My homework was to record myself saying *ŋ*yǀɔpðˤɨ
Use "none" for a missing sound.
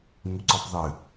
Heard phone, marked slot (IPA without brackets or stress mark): ŋ